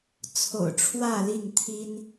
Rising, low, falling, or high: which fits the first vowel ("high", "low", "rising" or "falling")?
low